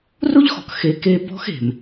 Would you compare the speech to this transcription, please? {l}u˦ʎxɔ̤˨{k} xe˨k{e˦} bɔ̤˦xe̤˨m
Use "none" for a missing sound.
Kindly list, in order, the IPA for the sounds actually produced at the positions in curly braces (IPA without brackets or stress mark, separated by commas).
r, k, e˦